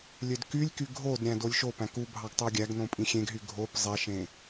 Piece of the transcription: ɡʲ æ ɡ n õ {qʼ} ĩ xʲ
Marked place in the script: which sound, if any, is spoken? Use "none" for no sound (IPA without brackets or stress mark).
pʼ